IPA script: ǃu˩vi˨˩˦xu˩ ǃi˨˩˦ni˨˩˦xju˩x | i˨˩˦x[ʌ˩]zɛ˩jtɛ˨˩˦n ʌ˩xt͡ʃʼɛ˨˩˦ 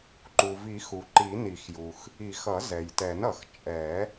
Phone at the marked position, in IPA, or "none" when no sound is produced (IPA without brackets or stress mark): ʌ˨˩˦